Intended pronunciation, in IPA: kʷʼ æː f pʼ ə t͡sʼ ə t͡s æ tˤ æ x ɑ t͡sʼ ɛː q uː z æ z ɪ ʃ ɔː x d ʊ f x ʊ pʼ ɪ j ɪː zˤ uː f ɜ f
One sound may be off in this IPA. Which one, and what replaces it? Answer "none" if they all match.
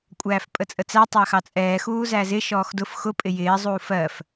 q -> x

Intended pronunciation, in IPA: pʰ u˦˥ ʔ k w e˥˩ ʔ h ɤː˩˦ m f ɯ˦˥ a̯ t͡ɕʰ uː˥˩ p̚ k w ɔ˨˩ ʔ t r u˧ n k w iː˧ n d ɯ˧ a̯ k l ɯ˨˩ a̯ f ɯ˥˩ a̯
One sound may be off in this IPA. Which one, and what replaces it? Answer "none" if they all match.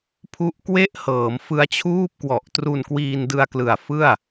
none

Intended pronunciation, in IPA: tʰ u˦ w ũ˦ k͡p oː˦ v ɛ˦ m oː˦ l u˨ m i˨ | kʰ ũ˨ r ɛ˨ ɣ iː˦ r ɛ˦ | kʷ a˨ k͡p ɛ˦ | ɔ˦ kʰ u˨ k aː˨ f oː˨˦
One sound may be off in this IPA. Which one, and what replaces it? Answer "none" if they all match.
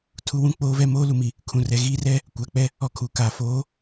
none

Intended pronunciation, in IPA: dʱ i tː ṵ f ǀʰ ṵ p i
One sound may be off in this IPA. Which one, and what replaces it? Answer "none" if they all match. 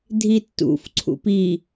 none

